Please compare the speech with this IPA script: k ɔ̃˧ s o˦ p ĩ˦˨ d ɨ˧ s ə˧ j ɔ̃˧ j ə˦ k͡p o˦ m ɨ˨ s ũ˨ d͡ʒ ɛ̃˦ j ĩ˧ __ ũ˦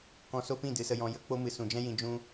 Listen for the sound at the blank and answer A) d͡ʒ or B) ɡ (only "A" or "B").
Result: A